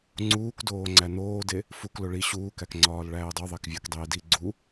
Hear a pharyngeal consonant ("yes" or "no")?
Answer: no